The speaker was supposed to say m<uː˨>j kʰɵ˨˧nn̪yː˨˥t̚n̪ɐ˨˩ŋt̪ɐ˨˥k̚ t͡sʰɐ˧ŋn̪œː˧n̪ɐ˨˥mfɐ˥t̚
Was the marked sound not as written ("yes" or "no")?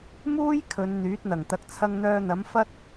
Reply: yes